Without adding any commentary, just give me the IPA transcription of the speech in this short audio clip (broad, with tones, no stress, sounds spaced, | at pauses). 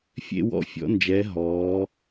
fʲ ḛ˧ w ɔ̰˧˩ fʲ ɔ̰˩˧ n d͡ʒ ɛː˩˧ ɦ ɔː˩˧